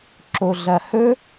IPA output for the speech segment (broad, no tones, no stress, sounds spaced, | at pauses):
ǁ o ɮ ɐ h ɵ